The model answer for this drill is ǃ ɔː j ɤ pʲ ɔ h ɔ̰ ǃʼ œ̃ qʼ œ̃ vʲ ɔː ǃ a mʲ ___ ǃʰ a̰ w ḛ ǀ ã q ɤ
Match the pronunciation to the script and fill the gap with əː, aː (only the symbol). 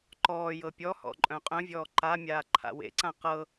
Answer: aː